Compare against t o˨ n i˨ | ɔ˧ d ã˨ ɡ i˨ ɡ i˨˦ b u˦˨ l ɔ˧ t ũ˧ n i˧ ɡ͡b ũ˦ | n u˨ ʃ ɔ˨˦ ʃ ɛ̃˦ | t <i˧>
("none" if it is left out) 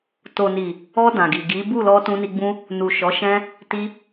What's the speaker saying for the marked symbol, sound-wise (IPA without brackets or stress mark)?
i˧